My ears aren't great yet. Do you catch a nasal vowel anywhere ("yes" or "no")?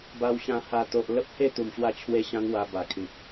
yes